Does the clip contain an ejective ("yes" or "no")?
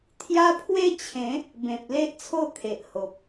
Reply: no